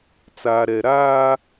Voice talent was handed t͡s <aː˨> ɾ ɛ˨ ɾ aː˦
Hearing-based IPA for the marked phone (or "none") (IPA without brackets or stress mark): aː˨